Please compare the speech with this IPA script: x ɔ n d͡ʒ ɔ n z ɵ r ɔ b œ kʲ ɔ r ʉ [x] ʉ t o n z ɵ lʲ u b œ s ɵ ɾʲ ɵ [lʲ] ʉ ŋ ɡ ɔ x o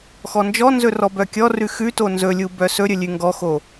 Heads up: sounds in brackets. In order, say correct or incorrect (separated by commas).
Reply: correct, correct